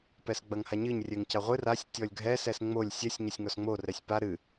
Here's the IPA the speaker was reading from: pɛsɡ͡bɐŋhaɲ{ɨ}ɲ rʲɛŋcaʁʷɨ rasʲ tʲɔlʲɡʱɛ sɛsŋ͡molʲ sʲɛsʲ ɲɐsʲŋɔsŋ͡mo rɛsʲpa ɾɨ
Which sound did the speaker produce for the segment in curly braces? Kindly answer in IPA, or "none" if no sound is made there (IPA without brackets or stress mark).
ɨ